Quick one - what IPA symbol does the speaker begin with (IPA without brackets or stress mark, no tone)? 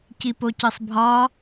c